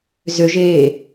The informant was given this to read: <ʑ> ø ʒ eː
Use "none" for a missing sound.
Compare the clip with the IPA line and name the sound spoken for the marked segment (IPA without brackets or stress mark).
z